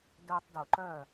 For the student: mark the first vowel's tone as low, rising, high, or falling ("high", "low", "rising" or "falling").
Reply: high